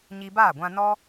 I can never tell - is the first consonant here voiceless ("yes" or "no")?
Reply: no